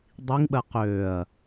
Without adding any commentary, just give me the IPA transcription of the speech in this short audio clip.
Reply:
dˤ i ŋ ɓ ɜ q øː ɐ̯

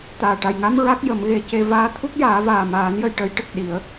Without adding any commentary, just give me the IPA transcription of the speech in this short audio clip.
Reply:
t̪ aː˨˩ ʈ a˨˩ j ŋ a˧ m ɹ a˦˥ k̚ j ə˨˩˦ m ɣ e˨˩˦ c e˧ v aː˧˥ t̪ʰ u˦˥ k̚ j aː˨˩˦ v aː˨˩ m aː˨˩˦ n j ə˨˩˨ j ʈ ə˨˩˦ j ʈ ə˨˩ k̚ ɗ i˨˩˦ ə̯

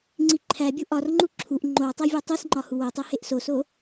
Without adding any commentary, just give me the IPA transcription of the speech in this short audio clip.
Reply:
ŋ͡ǀ i ǃʰ æ bʲ u ʔ ɒ r ŋ͡ǃ u ǁʰ u ʔ ŋ͡ǃ o w tˤ æ vʲ æ tˤ i s ŋ͡ǃ ɒ h u w o tˤ u h e ʔ s o s o

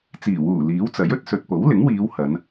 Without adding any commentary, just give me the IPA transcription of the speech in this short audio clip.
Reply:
t͡s iː˨˩ w uː˨˩ l iː˨˥ w t͡s ɐ˨˥ j ɵ˧ t̚ s ɵ˨ t̚ p o˨˥ w l ɪ˨˥ ŋ w iː˨˧ w h ɐ˨˧ n

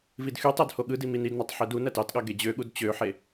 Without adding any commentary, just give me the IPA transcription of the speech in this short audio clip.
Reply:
v i d x y tˤ æ d h o ɠ ɯ d i m i n i d n ɑ tˤ ħ e d u n æ t ɑ t ɠ ɑ ɡ e d͡ʑ ø ɠ u d t͡ɕ ø ħ e

